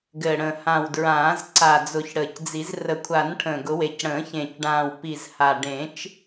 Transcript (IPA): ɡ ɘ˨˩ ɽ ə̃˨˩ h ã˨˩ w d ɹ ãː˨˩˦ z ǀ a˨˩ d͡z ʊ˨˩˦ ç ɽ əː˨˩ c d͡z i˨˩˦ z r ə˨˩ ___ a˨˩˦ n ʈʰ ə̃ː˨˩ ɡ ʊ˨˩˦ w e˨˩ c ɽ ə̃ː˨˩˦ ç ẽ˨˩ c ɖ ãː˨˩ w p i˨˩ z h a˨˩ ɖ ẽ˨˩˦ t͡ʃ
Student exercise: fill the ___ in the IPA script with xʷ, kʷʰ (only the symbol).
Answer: kʷʰ